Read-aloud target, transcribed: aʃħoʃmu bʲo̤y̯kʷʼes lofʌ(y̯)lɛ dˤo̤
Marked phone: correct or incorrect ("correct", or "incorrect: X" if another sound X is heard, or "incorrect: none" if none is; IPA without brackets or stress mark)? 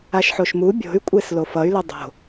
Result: correct